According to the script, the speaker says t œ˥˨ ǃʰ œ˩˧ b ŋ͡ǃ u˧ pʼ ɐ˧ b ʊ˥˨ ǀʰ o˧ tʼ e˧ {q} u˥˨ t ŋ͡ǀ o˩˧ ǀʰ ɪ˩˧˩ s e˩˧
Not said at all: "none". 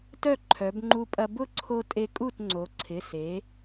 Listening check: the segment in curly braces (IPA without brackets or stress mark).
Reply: kʼ